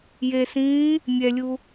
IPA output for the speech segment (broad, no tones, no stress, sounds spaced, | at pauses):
j e s ĩː | mʲ ɛ lʲ u